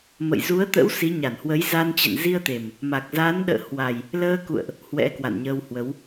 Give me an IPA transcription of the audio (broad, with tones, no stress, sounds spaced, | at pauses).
m ə̰˧˨ j z u˨˦ ə̯ t̪ ə̰˧˥ w s i˨˦ ɲ a˧˩ n h w ə˨˦ j z a˧ n t͡ɕ ɛ̰˧˨ n z i˧ ə̯ t̪ e˨˩ m | m a˨˩ k̚ z a˨˦ n ɗ ə̰ː˧˨ h w a˨˩ j | l əː˧ k ṵ˧˨ ə̯ ʔ | h w ɛ̰˧˥ k w a̰˧˨ n ɲ əː˧ w h w ə˨˦ w